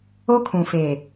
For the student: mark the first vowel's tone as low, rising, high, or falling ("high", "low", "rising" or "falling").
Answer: high